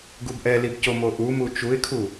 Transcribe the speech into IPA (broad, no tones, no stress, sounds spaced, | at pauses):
ɡ u b ʔ ɛ l i b c o m o ʔ u m u t͡ʃ u ɪ̯ kʰ u